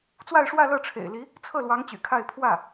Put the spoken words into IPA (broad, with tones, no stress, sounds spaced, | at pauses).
t͡s w a˥˧ ɪ̯ ʂ w ä˥˧ l ɤ˥˩ ʈ͡ʂʰ ḛ˨˩ ɪ̯ l i˧˥ | t͡sʰ ɤ˥˩ l w ɑ˧˥ ŋ t͡ɕ y̰˨˩ kʰ a˥˧ ɪ̯ pʰ w ä˥˩